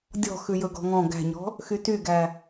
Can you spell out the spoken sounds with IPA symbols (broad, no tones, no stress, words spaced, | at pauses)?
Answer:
dʲɔ̤ xʉjɵɡɔ̤ŋɔ̃ ɡæ̤ɲɔ̤ | xytyɡæ